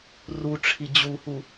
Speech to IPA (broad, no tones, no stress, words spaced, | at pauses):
ruʈ͡ʂʰi d͡ʑuhu